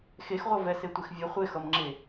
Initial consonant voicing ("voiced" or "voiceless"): voiceless